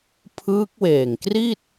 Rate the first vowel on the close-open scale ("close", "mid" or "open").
close